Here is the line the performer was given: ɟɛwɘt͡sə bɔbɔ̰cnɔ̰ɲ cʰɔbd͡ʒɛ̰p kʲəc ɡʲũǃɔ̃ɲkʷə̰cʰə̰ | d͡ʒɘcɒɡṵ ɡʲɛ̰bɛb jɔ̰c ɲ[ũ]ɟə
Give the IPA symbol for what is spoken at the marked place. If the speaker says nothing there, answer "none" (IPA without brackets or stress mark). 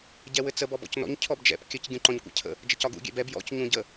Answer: ũ